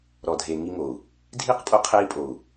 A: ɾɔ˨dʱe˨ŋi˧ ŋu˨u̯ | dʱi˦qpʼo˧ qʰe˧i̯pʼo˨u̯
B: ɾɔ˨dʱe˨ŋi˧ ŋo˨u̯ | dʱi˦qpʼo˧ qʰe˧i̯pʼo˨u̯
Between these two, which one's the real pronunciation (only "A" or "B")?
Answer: B